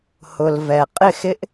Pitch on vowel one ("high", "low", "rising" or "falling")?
low